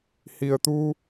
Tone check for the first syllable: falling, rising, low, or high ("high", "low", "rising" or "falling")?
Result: low